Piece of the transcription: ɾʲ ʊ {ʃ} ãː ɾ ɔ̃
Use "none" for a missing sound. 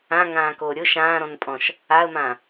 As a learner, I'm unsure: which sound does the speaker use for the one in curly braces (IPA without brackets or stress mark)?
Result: ʃ